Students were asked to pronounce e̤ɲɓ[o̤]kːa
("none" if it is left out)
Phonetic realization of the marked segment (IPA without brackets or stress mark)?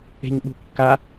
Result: ṳ